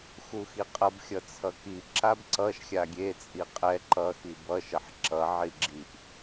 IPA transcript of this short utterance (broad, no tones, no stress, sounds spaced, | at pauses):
x u x i qʼ ʌ b xʲ ʌ t͡sʰ ʌ k i ǁ a b ǀ ʌ ʃ xʲ a ɡʲ e t͡sʼ i qʼ ɛ ǃ ʌ x i b ʌ ʃ ʌ ħ ǁ ʌ ʕ i ɡ͡ǁ i ʔ